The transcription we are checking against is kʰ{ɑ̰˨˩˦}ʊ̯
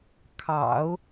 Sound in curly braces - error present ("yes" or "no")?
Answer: no